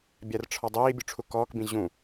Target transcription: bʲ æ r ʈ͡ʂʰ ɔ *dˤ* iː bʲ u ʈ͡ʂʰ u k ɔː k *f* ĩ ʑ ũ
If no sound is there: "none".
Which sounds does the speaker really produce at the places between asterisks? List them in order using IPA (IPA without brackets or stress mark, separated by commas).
dˤ, b